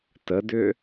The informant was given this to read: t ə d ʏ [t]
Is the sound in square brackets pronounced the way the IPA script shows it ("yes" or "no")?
no